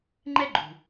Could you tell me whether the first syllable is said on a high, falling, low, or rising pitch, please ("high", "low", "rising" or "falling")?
high